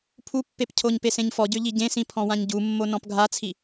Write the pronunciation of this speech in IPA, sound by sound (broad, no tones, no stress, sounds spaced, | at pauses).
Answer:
pʰ u pː e p cʰ o ɲ p e s ẽ ɲ f ɔ ɟ ø ʎ i ɟ ẽ s ĩ pʰ ɔ̃ w ã ɲ ɟ u mː o n ɔ̃ p ɡʱ a t͡sʰ i